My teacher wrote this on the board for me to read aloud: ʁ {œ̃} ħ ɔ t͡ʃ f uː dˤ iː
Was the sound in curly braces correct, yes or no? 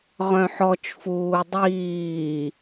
yes